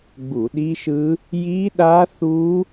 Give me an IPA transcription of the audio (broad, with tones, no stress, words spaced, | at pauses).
ɡ͡bu˧˩˧ɗi˦˥ʃɯ˦˥ | ji˦˥ɗa˦˥θu˦˥